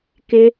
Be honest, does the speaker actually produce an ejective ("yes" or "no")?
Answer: no